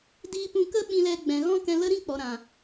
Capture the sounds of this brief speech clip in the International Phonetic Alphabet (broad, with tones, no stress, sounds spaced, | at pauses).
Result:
d iː˧ p ũ˧ k ə˦ ɓ ĩ˧ l ɛ˧ ɡ͡b ɛ̃˨ ɣ ɔ̃˦ k ɛ̃˧ l ə˦ ɾ ĩ˦ k͡p ɔ˨ ɾ ã˨